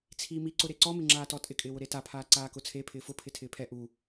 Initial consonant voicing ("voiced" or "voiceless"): voiceless